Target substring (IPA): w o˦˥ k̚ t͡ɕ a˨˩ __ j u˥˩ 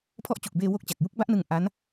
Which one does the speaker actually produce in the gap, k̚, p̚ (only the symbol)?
k̚